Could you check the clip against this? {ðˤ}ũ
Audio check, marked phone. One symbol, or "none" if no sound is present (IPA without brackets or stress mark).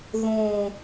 ð